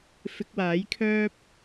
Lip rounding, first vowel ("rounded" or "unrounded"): unrounded